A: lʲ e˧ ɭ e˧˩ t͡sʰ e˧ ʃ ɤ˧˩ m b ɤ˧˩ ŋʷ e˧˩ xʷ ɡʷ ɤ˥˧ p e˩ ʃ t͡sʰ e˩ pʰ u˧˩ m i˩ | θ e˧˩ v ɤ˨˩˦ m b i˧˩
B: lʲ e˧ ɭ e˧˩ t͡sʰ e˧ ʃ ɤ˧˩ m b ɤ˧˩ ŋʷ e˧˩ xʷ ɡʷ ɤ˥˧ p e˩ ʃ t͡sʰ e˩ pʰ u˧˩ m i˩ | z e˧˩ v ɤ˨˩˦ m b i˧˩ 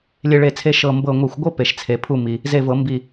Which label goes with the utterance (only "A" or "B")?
B